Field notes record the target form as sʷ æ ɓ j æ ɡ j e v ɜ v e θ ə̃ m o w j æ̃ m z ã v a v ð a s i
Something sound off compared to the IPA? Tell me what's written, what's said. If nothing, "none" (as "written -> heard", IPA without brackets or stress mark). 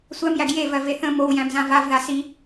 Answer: ɓ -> m